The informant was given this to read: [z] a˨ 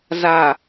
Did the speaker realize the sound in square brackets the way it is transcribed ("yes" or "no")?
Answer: yes